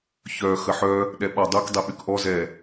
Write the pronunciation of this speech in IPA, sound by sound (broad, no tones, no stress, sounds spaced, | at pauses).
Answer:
ç œ x ə ħ œ | ɗ ɛ ɓ ɔ dˤ u k dˤ e ɓ y k ʔ ɔ z ɛ